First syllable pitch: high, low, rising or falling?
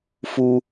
high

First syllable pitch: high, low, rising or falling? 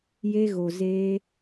high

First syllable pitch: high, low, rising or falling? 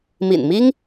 low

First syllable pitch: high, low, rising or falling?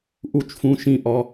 falling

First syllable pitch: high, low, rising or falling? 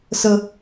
high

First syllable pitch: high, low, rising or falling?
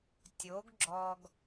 rising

